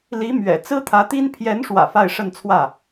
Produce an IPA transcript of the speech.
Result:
l i˧˥ m ɥ ɛ̰˨˩ t͡s ɹ̩˥ t̪ʰ ä˧˥ t̪ i˥ n pʰ j ɛ˧˥ n ʂ w ä̰˨˩ f a˥˧ ɪ̯ ʂ ə˥˧ n t͡sʰ w ä˥˩

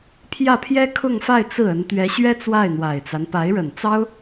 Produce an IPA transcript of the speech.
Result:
pʰ j ä˥˩ pʰ j ɛ˥ kʰ ʊ˥˧ ŋ f a˥˧ ɪ̯ t͡s ɹ̩˥˩ ə˧˥ n t̪ ɥ ɛ˧˥ ɕ ɥ ɛ˥ t͡s w a˥˩ ɪ̯ n̪ w a˨˩ ɪ̯ t͡s a˦ n p a˧˥ ɪ̯ ɻ ə˨˩ n t͡s ɑ˥ ʊ̯

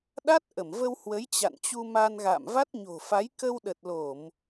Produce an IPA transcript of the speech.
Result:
ɗ a˦˥ t̚ ʔ ə˧˩ m v ə˧ w h w ə˨˦ j t͡ɕ a̰˧˨ n t͡ɕ u˧ m a˧ n ɣ a̰ː˧˨ m v a˦˥ t̚ ɲ o̤˨˩ f a˨˦ j k ə˧ w ɗ ə˨˩ t̚ l o˧˩˨ m

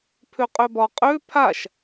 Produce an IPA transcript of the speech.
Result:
pʰ ø qʼ ø b ɒ qʼ ø pʰ a ʃ

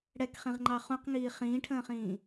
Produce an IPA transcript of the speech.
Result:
ɽ ɛ k χ ĩ ʁ ŋ͡ǃ ɑ χ ũ q ŋ iː χ ĩː ʈʰ ə̃ː χ ĩː

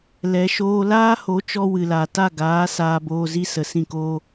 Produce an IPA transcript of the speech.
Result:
l ɛ˨˦ ʃ oː˦ l aː˦ h o˨˦ t͡ʃ ɔ˧ w ɨ˨ l a˨ t a˦˨ ɡ aː˨˦ s aː˧ b oː˧ z i˦ s ə˨ s ĩ˦˨ k oː˦

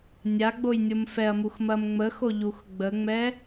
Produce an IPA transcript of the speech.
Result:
nʲ a ɡ͡b o j nʲ o m f ɛ ɐ̯ m u x m ɐ m ŋ͡m ə x o ʎ u x ɡ͡b ə ŋ͡m ɛ

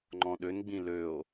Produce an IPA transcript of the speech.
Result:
ŋ͡ǃ ɔ̃ ɗ ø n ɡ͡b ĩ l ø o̯

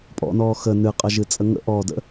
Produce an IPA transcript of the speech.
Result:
pʼ ɔ̰ n ɔː x ə n ɨ qʼ ɐ ʒ ɨ t͡sʼ ə ŋ ə̰ ʔ ɔː d ə̰

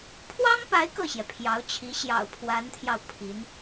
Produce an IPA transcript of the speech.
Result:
pʰ w ɑ˥ ŋ p a˧˥ ɪ̯ k ɤ˥˩ ɕ j ɛ˩ pʰ j ɑ˧˥ ʊ̯ t͡ɕʰ i˧˥ ɕ j ɑ̰˨˩ ʊ̯ pʰ w a˧˥ n t̪ʰ j ɑ˧ ʊ̯ pʰ i˧˥ n

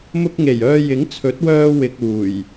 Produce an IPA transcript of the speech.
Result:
m ʊ˧ k̚ ŋ e˨˩ j œː˧ j ɪ˨˥ ŋ t͡sʰ ɵ˨˥ t̚ w œː˧ w ɪ˨ k̚ uː˨˩ j

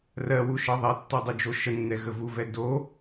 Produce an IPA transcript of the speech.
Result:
r ɜ w u ʃ ɤ ðˤ ɛ tː ɔ dˤ u d͡ʒ o ʃ ə nː ɛ ɣ ə v u v ɛ d o

